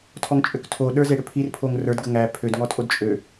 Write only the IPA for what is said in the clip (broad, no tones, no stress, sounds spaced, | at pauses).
tʰ ɔ ŋ t͡ʃʼ ø k tʰ o ɗ ə˞ z e ɽ ø pʰ i r pʰ o ŋ r ə˞ d ɡ ə ŋ æ pʰ ø d ŋ ɔ tʼ o d t͡ʃʼ ø